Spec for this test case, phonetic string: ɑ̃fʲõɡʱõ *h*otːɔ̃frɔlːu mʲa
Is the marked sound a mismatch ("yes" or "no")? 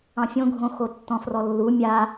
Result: yes